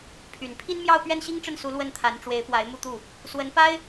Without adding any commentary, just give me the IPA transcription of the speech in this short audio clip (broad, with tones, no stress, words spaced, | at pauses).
pʰy˨˩n pʰi˥nmjɑ˥˧ʊ̯ pɥɛ˥˩nɕi˥ŋʈ͡ʂə˥˩nsu˧˥ lwə˥˩nt̪ʰa˧˥n ʈ͡ʂwe˧˥ɪ̯pwa˧˥ɪ̯ mu˥˧t̪u˥˩ | swə˧˥npa˥ɪ̯